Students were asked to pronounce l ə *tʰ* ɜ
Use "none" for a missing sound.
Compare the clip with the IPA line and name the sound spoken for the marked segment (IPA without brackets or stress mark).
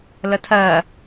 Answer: tʰ